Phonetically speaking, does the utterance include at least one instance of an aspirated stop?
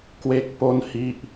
no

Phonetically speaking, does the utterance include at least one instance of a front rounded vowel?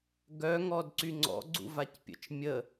yes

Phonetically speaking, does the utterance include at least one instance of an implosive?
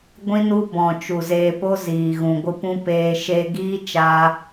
no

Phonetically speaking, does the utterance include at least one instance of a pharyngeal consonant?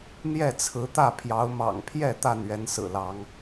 no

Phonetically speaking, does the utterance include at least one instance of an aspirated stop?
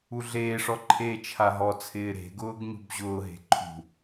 yes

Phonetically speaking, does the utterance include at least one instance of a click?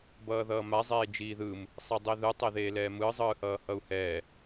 no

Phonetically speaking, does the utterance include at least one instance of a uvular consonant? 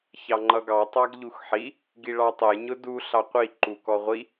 yes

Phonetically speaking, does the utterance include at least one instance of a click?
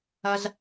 no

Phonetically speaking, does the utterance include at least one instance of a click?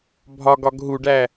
no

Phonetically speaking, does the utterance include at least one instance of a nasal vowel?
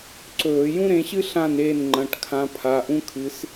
yes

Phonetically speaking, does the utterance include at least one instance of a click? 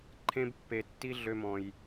yes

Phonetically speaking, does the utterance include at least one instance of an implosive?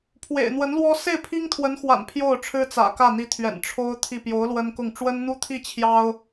no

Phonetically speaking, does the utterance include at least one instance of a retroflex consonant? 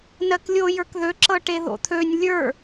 yes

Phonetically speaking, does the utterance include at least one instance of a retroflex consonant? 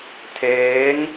no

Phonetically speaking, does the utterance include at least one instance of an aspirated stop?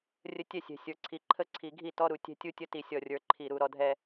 yes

